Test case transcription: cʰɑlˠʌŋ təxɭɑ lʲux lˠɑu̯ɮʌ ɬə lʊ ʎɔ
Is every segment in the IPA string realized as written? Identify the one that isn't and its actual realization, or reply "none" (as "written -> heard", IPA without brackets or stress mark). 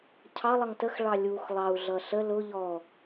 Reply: none